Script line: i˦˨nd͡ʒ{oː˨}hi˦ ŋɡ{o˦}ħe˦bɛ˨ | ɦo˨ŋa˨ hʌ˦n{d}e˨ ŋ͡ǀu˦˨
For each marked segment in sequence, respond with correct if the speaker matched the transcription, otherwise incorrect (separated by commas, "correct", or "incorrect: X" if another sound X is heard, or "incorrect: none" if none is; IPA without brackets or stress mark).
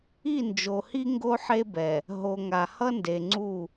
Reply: incorrect: o˨, correct, correct